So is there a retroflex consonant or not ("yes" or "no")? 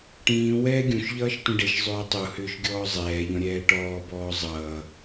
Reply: yes